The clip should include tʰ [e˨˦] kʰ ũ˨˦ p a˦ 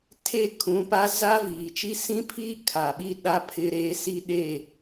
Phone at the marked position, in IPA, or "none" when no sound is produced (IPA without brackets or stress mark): e˦˨